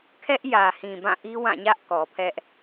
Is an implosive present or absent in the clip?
absent